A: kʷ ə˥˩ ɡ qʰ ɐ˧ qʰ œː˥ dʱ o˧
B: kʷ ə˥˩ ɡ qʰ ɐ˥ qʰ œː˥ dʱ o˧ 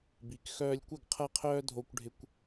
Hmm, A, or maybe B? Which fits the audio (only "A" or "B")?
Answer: B